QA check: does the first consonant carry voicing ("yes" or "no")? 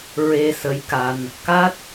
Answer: yes